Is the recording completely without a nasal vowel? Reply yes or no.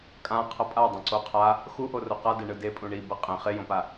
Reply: no